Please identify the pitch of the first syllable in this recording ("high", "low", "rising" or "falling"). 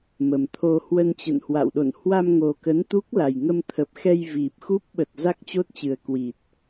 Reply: low